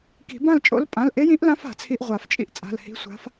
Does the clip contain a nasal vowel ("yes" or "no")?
yes